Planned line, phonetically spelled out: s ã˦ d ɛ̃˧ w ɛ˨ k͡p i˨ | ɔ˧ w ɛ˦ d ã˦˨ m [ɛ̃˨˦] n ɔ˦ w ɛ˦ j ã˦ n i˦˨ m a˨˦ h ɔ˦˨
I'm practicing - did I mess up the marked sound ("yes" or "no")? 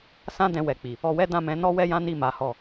no